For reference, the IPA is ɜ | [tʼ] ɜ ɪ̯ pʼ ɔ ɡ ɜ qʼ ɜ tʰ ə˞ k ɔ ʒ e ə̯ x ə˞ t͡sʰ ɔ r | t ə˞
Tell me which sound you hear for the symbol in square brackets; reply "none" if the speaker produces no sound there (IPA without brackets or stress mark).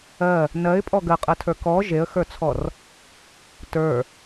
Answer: n